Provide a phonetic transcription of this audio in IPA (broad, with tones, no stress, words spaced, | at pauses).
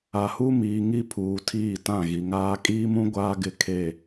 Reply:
a˨hu˦miː˨ ŋi˦pʰuː˨ tʰiː˦˨tã˦˨ɣi˨ŋaː˦ kʼiː˦mũ˦ ɡʷaː˦ɡɪ˦˨ kʰe˦˨